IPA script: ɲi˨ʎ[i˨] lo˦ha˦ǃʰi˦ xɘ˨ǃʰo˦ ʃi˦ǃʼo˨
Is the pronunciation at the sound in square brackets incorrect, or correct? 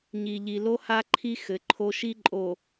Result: correct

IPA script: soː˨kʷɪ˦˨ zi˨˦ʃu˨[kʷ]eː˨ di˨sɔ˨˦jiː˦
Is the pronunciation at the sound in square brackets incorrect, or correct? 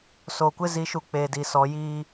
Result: incorrect: k͡p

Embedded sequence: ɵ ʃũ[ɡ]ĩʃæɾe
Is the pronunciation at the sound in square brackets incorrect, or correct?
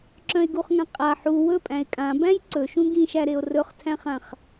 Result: correct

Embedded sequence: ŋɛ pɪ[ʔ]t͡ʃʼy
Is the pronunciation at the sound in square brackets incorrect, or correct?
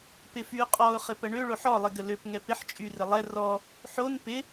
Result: incorrect: ħ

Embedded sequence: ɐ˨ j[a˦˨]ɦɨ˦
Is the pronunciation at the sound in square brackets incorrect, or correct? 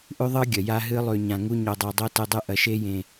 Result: incorrect: a˦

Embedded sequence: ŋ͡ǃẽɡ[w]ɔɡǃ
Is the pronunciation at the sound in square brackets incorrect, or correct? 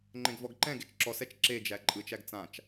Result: incorrect: v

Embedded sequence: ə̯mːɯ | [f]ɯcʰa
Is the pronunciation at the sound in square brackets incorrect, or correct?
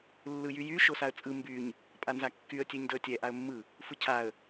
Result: correct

